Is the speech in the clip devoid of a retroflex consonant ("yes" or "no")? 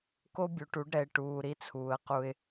no